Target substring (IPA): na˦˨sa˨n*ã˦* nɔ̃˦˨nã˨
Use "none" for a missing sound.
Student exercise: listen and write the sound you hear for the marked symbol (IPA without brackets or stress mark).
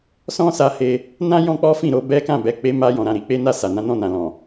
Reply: ã˨˦